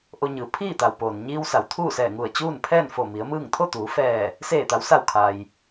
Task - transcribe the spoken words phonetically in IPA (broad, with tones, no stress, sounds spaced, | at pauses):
ʔ o˧ ɲ ɯː˩˧ pʰ iː˥˨ t̪ a˩ w p oː˩ n ɲ iː˧ w s a˩˧ w t̪ʰ uː˥˨ s ɛː˧˩ ŋ u˧˩ ə̯ t͡ɕ uː˥˨ n pʰ ɛː˥˨ n f o˧˩ m i˩˧ ə̯ m ɯː˥˨ ŋ t̪ʰ o˥˨ t̪ uː˩˧ f ɛː˧˩ | s eː˧˩ t̪ a˩˧ w s a˧˩ w kʰ a˩ j